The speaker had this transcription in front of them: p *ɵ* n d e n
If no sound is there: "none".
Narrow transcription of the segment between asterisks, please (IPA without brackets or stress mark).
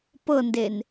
ɤ